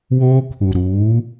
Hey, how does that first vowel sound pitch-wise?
high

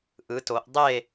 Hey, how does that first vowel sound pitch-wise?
rising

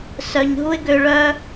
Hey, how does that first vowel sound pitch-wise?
low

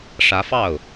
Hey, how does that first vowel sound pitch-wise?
rising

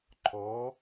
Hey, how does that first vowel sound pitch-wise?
rising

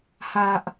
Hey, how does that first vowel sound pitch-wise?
low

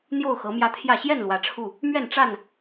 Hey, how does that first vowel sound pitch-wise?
falling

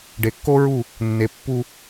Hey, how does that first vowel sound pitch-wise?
low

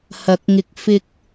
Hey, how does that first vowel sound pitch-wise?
rising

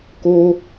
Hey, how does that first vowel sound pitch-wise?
high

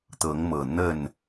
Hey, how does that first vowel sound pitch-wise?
rising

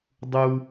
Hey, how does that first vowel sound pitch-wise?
high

